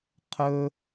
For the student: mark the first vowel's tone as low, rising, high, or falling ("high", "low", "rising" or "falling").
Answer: high